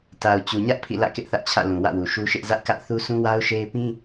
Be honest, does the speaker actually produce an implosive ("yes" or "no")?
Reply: no